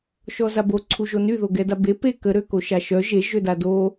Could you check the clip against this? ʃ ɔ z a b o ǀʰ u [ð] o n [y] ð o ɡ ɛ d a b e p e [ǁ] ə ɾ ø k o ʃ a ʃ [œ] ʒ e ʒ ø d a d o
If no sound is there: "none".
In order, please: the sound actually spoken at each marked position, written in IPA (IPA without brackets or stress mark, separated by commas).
ʒ, y, k, œ